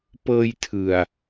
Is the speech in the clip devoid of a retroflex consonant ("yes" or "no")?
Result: yes